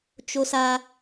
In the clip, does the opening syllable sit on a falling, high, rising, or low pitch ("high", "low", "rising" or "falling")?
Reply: high